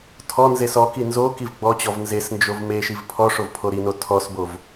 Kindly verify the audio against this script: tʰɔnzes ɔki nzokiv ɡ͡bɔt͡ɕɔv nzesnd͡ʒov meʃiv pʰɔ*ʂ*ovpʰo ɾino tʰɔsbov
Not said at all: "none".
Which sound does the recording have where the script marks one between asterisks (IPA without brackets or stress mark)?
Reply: ʂ